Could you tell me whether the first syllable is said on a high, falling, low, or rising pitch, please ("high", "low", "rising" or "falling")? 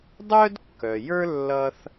high